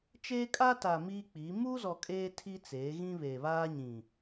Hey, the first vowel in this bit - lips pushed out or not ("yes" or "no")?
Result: no